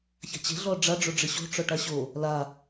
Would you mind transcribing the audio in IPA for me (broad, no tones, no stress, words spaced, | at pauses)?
ça̤t͡ɕe̤ ɮɔɖ͡ʐa ɖ͡ʐoɖ͡ʐɪɕo̤ ʈ͡ʂɔʈaɕo | la